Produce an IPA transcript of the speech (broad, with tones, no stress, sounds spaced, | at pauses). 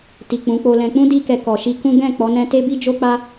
t i˨ k͡p ũ˨˦ k͡p o˧ l ɛ̃˧ k͡p ũ˦ d i˧ k ɛ˨ k ɔ˨ ʃ i˧ k ũ˦ ɡ ɛ̃˦˨ k͡p ɔ˨˦ n ɛ̃˧ t e˦ b i˦ d͡ʒ o˦ k͡p a˦